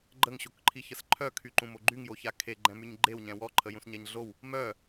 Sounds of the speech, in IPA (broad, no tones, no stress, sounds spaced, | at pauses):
ɡ͡ǃ ə ŋ ɕ o k ǃʰ i ç ə s ǃʰ œ kʰ y ǃ ũ m o ɡ͡ǃ y ŋ j o ç a kʰ e ɡ͡ǃ ɛ̃ m y ɲ ɡ͡ǃ e w ɲ ɛ̃ w ɔ ǃʰ ə j ũ s ɲ ɛ ɲ ɮ o w | m œ